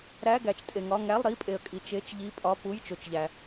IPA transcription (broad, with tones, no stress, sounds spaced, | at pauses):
ɾ æ˧˥˧ ɡ æ˨ t͡ʃ tʼ e˨ ŋ ɒ˧˥˧ ŋ æ˧˥˧ lˠ ɾ i˧˥˧ pʼ e˨ ə̯ kʼ i˨ t͡ʃ e˧˥˧ t͡ʃ ʎ i˧˥˧ pʼ ɒ˧˥˧ p u˧˥˧ j t͡ʃ o˨ t͡ʃ ʎ æ˨